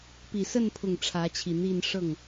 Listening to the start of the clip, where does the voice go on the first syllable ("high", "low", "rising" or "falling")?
low